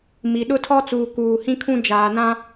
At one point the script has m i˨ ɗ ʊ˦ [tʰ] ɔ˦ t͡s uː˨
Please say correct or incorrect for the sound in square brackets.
correct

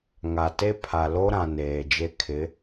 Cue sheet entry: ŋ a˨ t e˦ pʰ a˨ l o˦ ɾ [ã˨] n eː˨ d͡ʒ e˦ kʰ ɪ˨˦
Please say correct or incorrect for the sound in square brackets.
correct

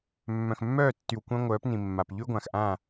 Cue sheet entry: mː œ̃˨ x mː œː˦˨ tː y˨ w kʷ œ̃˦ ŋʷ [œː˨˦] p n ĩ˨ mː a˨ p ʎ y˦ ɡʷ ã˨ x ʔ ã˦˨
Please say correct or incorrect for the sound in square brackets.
correct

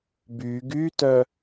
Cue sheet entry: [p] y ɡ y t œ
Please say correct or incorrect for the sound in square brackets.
incorrect: b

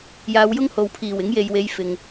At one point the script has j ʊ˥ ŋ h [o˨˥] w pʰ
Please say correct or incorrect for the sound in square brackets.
incorrect: o˨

